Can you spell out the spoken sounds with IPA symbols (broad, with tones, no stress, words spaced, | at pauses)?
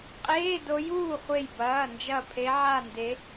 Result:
qʼeː˧˥˧do˧˥juː˥˨χʷe˧˩j bɐː˩˧˩nd͡ʒɐ˧˩ pʰe˧˥ʕa˥˨nde˧˥